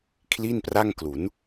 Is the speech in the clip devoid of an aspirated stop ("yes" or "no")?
no